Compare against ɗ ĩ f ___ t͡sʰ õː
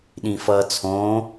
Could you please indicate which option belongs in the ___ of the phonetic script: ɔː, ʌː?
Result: ʌː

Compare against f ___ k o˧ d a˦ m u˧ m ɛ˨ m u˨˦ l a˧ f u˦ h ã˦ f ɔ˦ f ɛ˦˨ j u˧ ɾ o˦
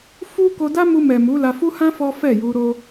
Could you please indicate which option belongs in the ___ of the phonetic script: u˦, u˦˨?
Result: u˦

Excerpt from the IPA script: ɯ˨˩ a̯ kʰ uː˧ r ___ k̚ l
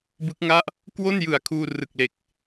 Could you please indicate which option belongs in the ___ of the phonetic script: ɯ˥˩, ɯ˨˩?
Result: ɯ˨˩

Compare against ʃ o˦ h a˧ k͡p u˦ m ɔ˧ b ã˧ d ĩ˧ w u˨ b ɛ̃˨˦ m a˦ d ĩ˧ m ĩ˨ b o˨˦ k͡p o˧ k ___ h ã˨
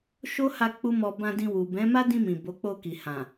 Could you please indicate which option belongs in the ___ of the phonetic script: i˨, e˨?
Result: i˨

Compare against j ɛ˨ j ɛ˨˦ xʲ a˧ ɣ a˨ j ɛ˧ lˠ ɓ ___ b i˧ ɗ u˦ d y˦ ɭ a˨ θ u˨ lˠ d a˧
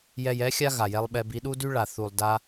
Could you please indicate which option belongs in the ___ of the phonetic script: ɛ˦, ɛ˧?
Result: ɛ˧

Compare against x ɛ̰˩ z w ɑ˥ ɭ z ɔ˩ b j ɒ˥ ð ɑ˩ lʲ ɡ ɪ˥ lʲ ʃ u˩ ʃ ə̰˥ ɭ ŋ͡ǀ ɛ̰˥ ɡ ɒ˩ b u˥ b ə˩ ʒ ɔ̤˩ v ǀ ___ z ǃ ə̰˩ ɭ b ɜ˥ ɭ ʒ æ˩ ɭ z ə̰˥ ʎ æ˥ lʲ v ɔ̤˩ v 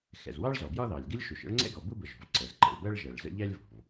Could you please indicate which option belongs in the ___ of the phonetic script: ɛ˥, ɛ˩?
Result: ɛ˩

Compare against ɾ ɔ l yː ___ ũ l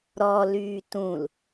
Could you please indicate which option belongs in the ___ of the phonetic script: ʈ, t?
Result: t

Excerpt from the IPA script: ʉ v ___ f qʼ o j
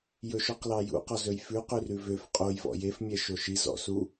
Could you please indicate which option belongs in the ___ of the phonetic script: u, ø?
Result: ø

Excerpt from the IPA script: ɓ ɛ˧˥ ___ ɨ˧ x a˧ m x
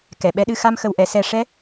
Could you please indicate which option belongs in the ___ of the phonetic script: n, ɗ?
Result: ɗ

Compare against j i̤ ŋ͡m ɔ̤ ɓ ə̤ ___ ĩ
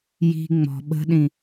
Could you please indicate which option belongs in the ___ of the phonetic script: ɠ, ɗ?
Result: ɗ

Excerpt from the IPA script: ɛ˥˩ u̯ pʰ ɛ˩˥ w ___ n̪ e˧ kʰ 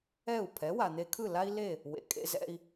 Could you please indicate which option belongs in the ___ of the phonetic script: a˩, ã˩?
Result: a˩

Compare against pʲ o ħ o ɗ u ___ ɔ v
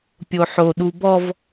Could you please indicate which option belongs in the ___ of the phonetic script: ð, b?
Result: b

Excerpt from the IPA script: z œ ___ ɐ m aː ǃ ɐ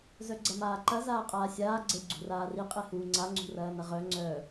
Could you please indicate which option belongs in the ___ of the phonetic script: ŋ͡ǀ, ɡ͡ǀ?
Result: ɡ͡ǀ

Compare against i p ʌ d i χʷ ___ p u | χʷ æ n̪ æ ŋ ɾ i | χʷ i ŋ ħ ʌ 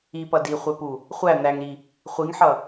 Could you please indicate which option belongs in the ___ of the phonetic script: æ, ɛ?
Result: ɛ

